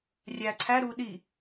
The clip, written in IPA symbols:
rʲæ ǀʰæɾuː ɗi

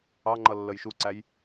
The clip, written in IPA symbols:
ɑŋ͡ǃʌlːəj ʃuǀæj

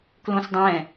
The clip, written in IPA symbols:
klõsdˤɛ̃

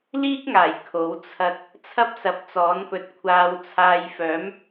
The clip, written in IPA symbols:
liː˥k̚ŋaː˨˩j kʰo˨˥w t͡sʰɐ˧t̚ | t͡sʰɐ˥p̚sɐ˨˥p̚t͡sɔː˨˥npɵ˨t̚ kʷʰaː˨wt͡sʰaː˨j fœː˨˥m

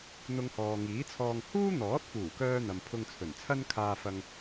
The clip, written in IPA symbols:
n̪ʊ˧ŋhɔː˨ŋiː˨˥t͡sʰɔː˧ŋ huː˥n̪ɔː˨˥t̚fuː˨˩kœː˧ n̪ɐ˨mpʰʊ˧ŋt͡sʰɵ˨˩nt͡sʰɐ˥n kʰaː˧fɐ˧ŋ

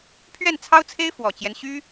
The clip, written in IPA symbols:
pʰɥɛ˥˩nt͡sʰɑ˥ʊ̯t͡sʰe˥ɪ̯ fwɔ˨˩t͡ɕjɛ˦n ɕy˥

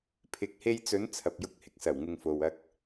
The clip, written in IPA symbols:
pʰɪ˨˥k̚he˧jt͡sɵ˨˧n t͡sʰɐ˨p̚jʊ˧k̚ hɪ˨k̚sɐ˨˩w ŋɪ˨ŋfo˨w ɐ˧k̚

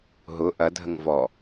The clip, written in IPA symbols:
ɦʊ ʔɐ dʱəŋvɔ

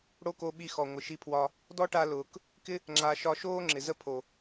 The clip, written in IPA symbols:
ɽo˦ko˧ɓi˧xɔ˨ ŋʷɪ˨ʃi˧pʰwɒ˧ | dɔ˦ʈa˧ lʊː˨k | kɪ˦ | ŋ͡ǁa˨ ʃɒ˧ʃoː˦ ŋ͡ǁɪ˨zə˦pʰo˨

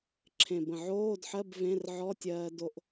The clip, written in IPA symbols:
ǁʰẽ˨˩bə̃˨˩ʕoː˧˥˧dħɜ˧˥˧b vẽ˧˥˧rʕɔ˧˥˧tʲɜː˧ do˧ʔ

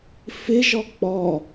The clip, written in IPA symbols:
fɪʒɔ k͡pɔ

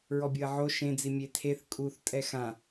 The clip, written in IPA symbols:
ɹɔbʲoɐ̯ʕo ʃẽd͡zi mʲetʰeθ kʼuθ tʼɛxã

